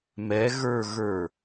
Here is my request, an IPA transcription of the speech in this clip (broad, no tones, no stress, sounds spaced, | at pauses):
m ɛ ɣ ə˞ ɣ ə˞